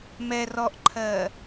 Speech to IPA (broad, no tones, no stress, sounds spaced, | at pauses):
m ɛ r ɔ ʔ ǃʰ ɜ